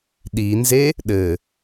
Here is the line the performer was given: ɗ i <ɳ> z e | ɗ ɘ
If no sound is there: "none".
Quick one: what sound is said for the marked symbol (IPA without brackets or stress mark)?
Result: n